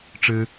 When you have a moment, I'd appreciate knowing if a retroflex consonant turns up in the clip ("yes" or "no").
yes